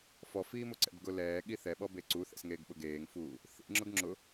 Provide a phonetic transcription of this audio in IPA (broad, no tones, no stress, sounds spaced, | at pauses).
f ɔ f iː m ʊ ǀ ɛ̰ b ɡ ʊ l ɛː ɠ i θ ɛ ɓ ɔ b e ǀ u θ ɛ̰ s ŋ eː ɡ ɓ ʊ ɡ eː ŋ f uː | θ ḭ ŋ͡ǁ ʊ ɡ ŋ͡ǁ ʊ